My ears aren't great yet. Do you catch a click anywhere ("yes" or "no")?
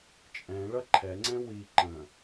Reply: yes